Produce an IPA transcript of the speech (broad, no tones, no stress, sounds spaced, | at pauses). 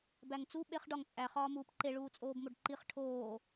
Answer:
b æ ŋ t͡s u ɓ e χ ɖ ɒ ŋ t͡sʼ æ χ ɒː m uː p ǃ e ɭ uː t͡sʼ oː b m o ɖ ǃ i χ ʈʰ oː